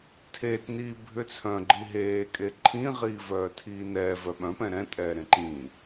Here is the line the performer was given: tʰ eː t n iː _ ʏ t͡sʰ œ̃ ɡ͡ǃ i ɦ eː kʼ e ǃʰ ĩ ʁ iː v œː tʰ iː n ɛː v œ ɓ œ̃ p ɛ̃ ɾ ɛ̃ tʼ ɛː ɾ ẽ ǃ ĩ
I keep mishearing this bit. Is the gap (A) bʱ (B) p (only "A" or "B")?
A